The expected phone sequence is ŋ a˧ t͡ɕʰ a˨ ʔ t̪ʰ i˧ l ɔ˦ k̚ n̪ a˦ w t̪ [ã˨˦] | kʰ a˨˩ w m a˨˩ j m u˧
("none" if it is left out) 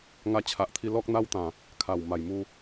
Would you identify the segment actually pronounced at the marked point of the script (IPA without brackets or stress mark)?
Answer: ã˨˩